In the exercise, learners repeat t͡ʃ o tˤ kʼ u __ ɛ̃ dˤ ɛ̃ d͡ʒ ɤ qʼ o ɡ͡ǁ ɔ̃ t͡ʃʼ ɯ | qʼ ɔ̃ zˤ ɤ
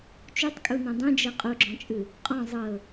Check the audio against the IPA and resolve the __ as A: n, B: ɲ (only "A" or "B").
A